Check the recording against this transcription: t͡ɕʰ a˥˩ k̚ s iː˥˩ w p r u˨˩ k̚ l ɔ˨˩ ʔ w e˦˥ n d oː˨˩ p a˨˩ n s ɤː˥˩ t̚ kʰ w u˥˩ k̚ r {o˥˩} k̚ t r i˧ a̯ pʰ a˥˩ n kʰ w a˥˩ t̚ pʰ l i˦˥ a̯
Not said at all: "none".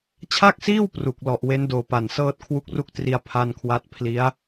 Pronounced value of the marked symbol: u˥˩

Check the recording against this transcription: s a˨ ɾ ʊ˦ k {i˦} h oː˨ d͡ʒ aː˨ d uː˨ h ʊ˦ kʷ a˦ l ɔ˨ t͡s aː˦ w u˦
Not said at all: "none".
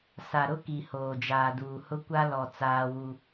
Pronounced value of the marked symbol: i˨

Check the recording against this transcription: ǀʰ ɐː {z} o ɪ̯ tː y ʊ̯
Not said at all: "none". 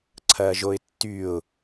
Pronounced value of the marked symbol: ʒ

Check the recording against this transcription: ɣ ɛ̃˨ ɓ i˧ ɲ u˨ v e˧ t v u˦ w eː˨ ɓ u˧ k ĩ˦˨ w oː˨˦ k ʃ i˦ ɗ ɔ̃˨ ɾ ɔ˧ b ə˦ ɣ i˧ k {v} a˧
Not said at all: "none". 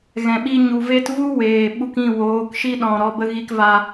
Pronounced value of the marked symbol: v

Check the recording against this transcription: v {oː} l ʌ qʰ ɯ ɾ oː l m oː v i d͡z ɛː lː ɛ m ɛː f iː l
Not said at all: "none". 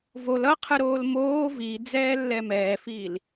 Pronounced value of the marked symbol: o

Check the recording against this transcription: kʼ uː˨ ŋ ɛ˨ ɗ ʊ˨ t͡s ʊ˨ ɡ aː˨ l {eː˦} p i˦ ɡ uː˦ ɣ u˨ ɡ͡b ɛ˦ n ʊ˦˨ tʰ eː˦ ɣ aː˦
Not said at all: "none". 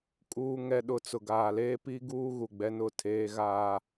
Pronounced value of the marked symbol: eː˦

